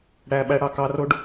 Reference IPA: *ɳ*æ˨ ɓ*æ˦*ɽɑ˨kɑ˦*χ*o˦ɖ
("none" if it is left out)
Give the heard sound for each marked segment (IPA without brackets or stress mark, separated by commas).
ɽ, æ˦, r